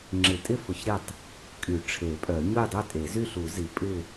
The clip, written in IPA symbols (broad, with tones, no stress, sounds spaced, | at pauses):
ŋ͡ǁ ɪ˨˩˦ tʼ ɪ˥˨ f ʊ˨˩˦ ç ɾ ɪ˥˨ tˤ | kʼ y˨˩˦ ʈ͡ʂʰ e˨˩˦ pʼ œ˨˩˦ ɲ ʊ˥˨ j dˤ ø˥˨ tʼ e˨˩˦ z y˥˨ ɬ u˨˩˦ z i˨˩˦ pʼ ɪ˥˨